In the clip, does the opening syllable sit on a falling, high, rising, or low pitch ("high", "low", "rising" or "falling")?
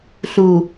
low